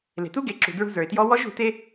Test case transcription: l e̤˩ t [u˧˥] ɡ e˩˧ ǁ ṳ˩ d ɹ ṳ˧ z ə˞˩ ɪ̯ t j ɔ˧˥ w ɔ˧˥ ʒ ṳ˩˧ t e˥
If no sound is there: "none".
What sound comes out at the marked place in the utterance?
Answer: u˧˥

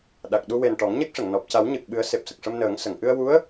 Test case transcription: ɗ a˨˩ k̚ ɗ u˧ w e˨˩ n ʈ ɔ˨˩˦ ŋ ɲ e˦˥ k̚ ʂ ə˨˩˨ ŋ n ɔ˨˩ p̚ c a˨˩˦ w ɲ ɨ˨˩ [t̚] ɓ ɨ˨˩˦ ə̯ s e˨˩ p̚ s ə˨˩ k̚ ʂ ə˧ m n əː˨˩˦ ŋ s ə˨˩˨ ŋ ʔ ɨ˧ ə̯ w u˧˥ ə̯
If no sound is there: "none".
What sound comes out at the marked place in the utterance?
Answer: k̚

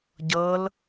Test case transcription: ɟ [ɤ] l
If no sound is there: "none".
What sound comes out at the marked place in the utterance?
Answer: ɤ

